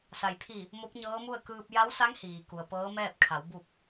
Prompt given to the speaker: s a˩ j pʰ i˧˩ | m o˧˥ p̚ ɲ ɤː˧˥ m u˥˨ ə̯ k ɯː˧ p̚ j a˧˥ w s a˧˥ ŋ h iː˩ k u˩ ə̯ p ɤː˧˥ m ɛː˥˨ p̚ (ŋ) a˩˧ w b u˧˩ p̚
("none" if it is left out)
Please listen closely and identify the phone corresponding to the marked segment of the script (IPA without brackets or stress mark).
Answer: kʰ